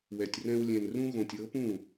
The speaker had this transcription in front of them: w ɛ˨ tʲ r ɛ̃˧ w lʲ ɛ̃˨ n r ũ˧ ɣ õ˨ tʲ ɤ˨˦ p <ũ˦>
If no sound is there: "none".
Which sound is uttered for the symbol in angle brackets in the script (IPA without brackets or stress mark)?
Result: ũ˦˨